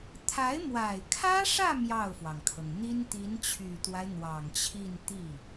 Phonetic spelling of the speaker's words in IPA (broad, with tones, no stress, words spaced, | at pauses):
t̪ʰa˧˥ɪ̯mwa˨˩ɪ̯kʰä˥ʂä˥˧ mjɑ˥˩ʊ̯fwɑ˩ŋkʰɤ˩ŋ n̪i˥nt̪i˧˥nt͡ɕʰy˨˩t̪wa˦ɪ̯ n̪wɑ˨˩ŋt͡ɕʰi˥˧nt̪i˥˩